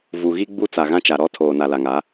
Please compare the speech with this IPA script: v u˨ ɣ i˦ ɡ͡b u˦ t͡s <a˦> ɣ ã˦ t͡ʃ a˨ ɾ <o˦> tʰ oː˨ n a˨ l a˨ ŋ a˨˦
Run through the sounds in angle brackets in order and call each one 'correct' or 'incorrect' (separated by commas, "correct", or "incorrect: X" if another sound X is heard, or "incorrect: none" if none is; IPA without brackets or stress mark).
incorrect: a˨, incorrect: ɔ˦